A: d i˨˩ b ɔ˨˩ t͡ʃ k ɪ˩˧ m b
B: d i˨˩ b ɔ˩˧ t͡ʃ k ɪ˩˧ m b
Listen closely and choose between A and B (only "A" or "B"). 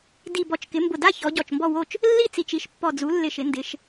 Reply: A